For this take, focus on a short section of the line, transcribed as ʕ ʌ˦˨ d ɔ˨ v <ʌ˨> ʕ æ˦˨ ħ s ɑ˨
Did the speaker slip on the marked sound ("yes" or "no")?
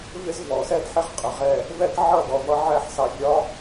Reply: yes